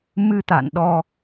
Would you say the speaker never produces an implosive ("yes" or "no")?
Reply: no